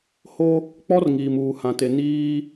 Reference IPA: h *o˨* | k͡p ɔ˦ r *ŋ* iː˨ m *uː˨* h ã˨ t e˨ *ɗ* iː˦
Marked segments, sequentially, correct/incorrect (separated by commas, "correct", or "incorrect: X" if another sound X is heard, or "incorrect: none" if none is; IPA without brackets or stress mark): incorrect: o˦, correct, correct, incorrect: n